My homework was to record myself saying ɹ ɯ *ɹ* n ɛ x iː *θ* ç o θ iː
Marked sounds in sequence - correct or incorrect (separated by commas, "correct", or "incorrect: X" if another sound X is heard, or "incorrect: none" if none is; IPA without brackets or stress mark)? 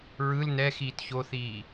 incorrect: l, incorrect: t